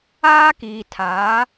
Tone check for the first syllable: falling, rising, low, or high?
high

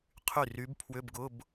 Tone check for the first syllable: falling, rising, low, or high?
falling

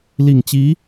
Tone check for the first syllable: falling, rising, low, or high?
low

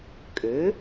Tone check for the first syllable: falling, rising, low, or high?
rising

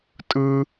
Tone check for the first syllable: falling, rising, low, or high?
high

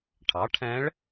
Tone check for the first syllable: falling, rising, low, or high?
rising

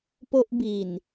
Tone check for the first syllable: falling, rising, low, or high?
high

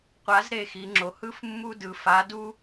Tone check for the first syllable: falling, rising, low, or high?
rising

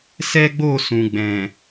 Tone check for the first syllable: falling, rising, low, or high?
high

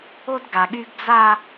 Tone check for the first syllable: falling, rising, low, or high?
high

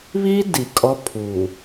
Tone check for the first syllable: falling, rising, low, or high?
high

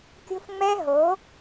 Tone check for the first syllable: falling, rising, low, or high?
high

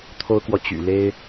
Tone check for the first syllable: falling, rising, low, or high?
high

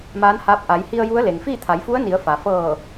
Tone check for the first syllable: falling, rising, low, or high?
rising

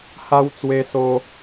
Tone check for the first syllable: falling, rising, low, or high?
high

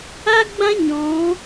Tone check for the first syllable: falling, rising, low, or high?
high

